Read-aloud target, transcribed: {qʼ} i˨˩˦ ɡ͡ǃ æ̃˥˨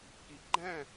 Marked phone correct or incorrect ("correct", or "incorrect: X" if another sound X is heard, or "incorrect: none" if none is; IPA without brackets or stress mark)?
incorrect: k